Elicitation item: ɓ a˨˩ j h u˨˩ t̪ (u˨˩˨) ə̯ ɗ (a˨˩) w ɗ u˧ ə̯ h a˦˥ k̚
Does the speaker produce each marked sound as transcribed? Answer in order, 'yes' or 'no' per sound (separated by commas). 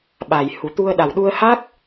no, yes